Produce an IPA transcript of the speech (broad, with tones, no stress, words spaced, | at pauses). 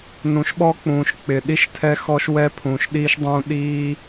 nũ˨ʃɓɔ˧k͡pũː˨ʃ k͡pɪ˨ ɗi˧ʃtʰɛ˧xɔ˧ʃwɛ˧ pʰũː˨ʃɗiː˧ʃdˤũː˧ ɗiː˦